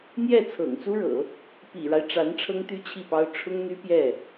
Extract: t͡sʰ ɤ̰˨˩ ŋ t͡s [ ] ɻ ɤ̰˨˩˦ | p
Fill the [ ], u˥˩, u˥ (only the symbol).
u˥